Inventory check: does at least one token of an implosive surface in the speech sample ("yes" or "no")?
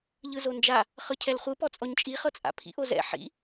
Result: no